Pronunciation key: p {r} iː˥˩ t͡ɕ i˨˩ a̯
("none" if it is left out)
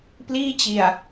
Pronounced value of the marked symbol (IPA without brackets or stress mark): l